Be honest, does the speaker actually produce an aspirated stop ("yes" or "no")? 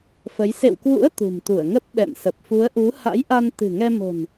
no